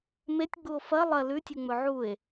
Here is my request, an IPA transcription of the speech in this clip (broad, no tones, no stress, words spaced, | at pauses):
metʲ ɡ͡buo̯fɐ lˠɐ lʉtʲuŋ͡mɵ ʕue̯